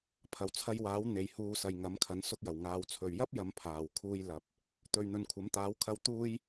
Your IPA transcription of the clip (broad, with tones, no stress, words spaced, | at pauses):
pʰɐ˨˩wt͡sʰɐ˧jwaː˨˥w n̪e˨jhuː˧ sɐ˨jŋɐ˨˥mkʰɐ˨˥n sʊ˧k̚jɐ˨˩wŋaː˨˧w t͡sʰɵ˨ɥ jɐ˥p̚ jɐ˨˧m pʰaː˨w kʰuː˧j lɐ˨p̚ | t̪ɵ˨ɥn̪ɵ˨nkʷʰɐ˨˥m t̪aː˨˥wkʰɐ˧w t̪uː˥j